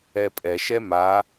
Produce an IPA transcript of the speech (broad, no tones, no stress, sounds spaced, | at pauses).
ɛ pʼ ɛ ʃ ɛ m a